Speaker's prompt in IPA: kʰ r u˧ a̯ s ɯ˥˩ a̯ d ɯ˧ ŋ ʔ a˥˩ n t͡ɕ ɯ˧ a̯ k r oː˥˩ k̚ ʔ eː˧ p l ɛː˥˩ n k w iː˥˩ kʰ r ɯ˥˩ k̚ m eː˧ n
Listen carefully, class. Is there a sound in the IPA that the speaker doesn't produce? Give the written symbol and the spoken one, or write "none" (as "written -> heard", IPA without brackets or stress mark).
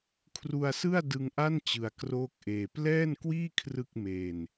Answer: none